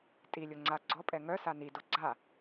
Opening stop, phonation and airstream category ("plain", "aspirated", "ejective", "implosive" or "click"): ejective